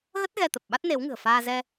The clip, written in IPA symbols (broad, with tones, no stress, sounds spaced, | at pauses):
ɣ ə˦˥ t̚ ɣ ɛ˧ t̪ ə˨˩ p̚ ɓ a˦˥ t̚ n e˨˦ w ŋ ɨ̤˨˩ ə̯ f aː˧ z ɛ˧